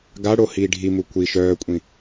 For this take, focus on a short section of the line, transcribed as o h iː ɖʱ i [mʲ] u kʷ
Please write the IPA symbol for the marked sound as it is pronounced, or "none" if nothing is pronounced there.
m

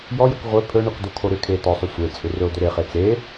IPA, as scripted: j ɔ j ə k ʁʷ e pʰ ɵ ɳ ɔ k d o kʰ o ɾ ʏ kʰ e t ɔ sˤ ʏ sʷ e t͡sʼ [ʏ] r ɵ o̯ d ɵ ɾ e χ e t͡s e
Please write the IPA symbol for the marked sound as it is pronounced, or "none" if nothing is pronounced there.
ʏ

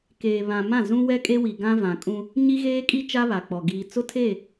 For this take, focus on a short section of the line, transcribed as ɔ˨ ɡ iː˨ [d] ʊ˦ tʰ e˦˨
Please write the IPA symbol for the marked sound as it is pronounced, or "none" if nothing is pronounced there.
t͡s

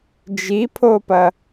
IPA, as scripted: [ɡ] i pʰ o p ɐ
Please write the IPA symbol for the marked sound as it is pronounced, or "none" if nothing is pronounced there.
d͡ʒ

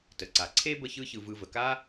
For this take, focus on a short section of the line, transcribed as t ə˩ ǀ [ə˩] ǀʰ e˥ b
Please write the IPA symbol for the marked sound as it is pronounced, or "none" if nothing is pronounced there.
a˩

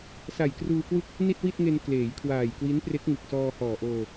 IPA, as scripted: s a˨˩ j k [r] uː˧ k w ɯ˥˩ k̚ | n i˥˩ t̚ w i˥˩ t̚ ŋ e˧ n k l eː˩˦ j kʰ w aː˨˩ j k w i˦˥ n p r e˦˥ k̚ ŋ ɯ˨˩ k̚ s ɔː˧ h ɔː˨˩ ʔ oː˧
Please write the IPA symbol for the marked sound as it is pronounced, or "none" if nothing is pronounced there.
r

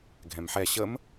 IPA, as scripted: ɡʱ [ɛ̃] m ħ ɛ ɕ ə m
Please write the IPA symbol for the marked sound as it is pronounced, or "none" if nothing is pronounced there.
ɛ̃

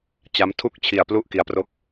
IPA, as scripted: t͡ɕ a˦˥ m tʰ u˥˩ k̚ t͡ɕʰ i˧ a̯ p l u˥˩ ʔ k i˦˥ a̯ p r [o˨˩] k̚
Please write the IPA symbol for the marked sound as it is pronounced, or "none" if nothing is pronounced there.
o˦˥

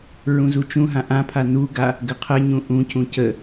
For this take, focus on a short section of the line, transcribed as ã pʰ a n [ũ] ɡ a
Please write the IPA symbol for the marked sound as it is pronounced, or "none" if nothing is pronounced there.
u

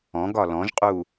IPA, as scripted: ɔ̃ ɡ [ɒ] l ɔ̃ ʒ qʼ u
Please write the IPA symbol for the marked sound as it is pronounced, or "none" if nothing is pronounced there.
ɒ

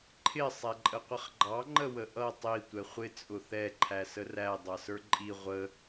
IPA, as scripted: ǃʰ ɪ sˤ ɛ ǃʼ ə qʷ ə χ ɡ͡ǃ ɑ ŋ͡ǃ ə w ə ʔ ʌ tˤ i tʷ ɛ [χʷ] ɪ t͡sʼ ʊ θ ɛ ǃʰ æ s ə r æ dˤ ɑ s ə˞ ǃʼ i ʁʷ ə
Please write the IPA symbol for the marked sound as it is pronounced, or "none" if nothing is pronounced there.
χʷ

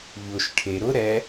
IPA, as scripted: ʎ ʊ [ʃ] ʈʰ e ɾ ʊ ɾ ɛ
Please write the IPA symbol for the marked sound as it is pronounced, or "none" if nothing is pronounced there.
ʃ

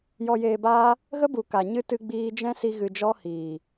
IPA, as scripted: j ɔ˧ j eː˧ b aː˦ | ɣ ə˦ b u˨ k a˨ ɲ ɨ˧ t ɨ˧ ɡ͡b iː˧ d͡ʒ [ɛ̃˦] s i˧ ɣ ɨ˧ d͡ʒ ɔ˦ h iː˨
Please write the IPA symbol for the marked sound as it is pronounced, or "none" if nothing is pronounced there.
ɛ̃˦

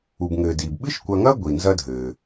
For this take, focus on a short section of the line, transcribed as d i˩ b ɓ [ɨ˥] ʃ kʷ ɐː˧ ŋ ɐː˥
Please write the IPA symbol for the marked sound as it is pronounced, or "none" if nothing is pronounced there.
ɨ˥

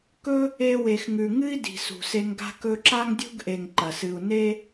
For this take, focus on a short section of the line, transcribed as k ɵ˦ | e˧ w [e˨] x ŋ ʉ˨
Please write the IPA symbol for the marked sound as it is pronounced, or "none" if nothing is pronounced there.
e˨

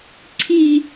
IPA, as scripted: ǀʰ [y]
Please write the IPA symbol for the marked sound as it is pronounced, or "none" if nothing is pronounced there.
i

